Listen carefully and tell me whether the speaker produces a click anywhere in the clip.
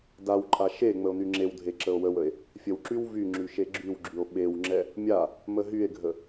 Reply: yes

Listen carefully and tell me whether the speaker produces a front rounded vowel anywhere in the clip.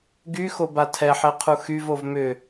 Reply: yes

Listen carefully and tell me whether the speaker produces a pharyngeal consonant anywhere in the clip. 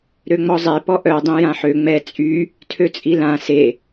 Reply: yes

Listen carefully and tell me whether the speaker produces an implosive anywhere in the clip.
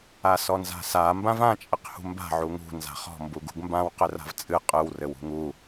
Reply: no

